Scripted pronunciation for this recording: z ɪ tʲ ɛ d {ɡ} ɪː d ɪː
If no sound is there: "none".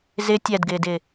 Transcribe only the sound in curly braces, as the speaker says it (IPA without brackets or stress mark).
ɡ